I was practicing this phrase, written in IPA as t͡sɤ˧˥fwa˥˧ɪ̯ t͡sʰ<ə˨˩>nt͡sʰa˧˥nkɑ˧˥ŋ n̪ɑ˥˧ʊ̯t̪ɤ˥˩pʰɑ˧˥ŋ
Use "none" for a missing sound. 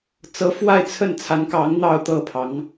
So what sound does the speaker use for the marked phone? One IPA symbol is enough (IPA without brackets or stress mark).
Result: ə˥˩